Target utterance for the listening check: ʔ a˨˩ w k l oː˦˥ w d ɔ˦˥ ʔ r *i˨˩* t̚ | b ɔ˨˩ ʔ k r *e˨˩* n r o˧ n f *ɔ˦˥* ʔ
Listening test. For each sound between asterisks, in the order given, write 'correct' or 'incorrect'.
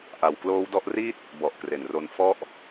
incorrect, correct, correct

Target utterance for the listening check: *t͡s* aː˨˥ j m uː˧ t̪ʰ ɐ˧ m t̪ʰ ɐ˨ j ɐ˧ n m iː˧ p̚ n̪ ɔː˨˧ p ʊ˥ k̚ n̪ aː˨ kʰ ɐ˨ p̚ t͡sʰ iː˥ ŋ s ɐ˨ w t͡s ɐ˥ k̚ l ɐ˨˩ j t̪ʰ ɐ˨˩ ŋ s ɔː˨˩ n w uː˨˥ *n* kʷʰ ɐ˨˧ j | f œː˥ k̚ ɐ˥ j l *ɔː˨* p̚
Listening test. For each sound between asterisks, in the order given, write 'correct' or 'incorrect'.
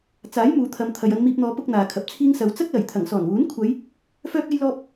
correct, correct, incorrect

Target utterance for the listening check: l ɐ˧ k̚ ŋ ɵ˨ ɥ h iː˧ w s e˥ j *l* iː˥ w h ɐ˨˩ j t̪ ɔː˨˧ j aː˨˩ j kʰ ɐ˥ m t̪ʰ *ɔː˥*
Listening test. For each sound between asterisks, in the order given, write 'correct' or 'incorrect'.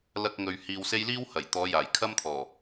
correct, incorrect

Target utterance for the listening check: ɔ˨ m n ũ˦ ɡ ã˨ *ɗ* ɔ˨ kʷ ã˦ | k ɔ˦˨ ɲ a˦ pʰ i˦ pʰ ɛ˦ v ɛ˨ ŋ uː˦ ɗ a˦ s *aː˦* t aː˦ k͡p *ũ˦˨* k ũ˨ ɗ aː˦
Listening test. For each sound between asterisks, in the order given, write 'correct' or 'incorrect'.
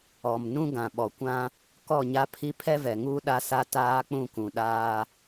incorrect, incorrect, correct

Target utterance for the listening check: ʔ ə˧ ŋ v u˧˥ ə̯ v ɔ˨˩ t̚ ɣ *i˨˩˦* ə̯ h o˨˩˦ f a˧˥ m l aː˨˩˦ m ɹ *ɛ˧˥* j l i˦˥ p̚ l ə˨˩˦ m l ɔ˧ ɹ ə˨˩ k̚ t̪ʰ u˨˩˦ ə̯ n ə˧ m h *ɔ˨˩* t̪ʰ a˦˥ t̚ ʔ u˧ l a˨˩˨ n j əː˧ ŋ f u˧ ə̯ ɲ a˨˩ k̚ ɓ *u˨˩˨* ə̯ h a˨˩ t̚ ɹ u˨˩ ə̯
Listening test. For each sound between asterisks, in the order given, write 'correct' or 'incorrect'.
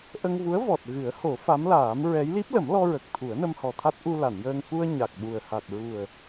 incorrect, correct, correct, incorrect

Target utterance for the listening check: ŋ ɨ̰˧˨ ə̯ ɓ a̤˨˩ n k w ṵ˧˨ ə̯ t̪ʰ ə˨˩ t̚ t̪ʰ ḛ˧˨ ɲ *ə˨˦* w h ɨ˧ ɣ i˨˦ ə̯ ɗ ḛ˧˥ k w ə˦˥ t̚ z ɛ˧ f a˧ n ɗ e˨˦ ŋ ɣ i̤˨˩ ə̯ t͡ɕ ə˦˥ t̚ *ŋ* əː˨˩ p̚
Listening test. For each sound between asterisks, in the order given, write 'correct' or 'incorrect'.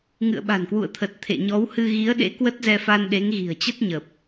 incorrect, incorrect

